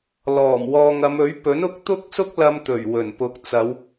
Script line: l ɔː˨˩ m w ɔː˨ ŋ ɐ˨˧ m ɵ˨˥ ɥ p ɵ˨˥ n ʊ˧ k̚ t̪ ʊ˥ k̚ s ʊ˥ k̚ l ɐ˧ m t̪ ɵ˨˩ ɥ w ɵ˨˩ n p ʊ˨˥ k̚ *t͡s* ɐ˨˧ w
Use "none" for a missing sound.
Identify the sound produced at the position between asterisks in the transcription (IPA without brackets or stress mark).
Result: t͡s